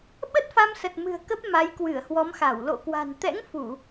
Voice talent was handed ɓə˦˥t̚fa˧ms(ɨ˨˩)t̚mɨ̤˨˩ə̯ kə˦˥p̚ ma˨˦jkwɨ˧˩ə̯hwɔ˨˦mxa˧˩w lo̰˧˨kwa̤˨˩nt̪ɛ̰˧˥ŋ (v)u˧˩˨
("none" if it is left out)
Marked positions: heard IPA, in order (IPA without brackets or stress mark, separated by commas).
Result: ə˨˩, f